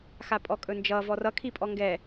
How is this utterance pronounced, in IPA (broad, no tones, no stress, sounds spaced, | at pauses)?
x a pʼ ɔ kʼ ɵ n d͡ʒ ʌ v ɔ r ʌ kʰ i pʼ ɔ ŋ ɡ ɛ